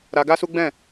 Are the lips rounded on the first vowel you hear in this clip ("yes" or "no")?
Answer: no